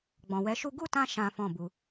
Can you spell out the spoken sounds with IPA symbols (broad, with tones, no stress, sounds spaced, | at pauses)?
ɡ͡b ɔ̃˨ w ɛ˨˦ ʃ u˦ ɡ u˦˨ t ã˧ ʃ ã˦ f ɔ̃˦˨ b u˧